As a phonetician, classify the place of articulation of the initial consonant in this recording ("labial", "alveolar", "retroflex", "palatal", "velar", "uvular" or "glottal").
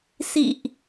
alveolar